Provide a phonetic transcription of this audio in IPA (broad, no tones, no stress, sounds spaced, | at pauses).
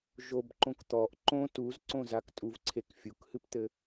ʒ o b ǃ õ k t̪ ɔ ʔ ǃ õ t u z ǀ õ z a k tʼ u v ǀʰ e k fʲ u k h ɨ p t̪ ɘ